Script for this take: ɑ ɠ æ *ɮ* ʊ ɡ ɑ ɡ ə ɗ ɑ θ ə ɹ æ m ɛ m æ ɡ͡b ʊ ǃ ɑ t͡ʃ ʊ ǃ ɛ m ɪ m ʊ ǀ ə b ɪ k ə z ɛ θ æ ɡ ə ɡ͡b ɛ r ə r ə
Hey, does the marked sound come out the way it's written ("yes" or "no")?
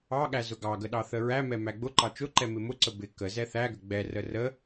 no